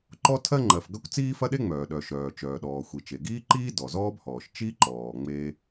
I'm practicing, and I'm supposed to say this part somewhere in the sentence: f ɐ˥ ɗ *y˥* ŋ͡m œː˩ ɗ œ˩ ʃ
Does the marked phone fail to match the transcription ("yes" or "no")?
yes